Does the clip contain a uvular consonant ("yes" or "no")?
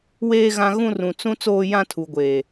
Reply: no